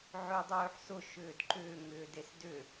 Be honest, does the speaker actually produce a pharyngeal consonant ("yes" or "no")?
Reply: yes